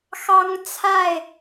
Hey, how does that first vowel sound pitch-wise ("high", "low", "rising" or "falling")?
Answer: high